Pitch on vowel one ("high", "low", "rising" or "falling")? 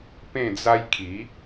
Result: falling